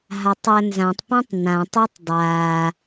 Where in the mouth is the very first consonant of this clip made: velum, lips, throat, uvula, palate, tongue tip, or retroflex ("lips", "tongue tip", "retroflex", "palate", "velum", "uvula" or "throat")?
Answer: throat